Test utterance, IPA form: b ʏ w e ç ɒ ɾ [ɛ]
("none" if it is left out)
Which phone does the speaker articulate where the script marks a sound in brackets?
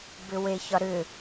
ʏ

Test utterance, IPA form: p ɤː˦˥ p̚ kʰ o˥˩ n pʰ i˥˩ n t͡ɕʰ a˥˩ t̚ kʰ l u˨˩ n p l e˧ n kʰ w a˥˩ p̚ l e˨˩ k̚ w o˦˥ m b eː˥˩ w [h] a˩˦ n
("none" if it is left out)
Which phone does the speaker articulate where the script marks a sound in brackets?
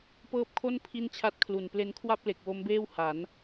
h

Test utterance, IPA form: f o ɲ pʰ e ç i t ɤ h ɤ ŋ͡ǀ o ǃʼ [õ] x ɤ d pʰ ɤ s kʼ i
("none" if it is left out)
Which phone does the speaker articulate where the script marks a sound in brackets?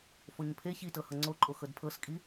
o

